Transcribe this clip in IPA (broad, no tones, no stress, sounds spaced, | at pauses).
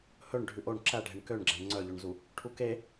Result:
h ɵ ɳ ɖʱ ʉ ʔ o ɳ ǁ æ ɖʱ e ɳ k ø ɳ ɡ͡ǁ æ ɳ ŋ͡ǀ œ ʎ o ɳ z u | ʈʰ u k e